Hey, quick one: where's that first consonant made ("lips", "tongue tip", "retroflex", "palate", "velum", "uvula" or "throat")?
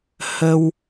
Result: throat